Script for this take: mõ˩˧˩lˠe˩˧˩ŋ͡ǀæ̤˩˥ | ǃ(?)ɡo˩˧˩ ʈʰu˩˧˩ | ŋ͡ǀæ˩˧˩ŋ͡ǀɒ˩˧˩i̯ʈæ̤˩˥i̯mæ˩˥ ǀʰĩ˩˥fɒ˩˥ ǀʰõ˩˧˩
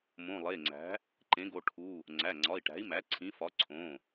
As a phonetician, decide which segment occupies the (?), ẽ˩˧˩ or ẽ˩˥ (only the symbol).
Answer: ẽ˩˥